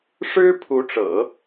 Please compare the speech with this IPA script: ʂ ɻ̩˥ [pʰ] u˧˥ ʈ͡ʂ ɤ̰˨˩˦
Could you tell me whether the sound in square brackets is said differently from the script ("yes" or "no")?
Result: no